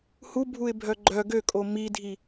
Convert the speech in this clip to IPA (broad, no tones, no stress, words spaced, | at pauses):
hu bʱuɪ̯bʱœɡ͡ǃœ ɡøkʼo midʱi